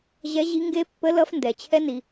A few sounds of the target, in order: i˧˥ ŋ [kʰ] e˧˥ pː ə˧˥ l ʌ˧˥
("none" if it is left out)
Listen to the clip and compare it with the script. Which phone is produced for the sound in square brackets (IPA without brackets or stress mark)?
ɡ